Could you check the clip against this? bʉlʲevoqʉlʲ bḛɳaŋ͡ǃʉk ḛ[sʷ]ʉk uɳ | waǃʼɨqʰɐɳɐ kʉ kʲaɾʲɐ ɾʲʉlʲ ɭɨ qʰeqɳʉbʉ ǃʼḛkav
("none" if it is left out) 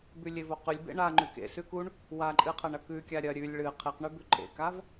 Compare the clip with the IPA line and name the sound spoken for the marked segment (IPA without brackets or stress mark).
s